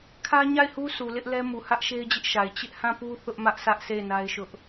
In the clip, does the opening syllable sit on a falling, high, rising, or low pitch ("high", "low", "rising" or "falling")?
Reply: high